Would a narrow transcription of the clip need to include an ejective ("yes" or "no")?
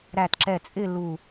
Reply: yes